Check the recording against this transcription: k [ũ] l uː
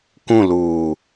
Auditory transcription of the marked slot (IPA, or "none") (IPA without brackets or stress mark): ũ